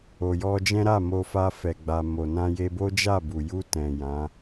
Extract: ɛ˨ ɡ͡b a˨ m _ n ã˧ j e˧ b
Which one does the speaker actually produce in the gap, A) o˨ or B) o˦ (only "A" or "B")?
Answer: A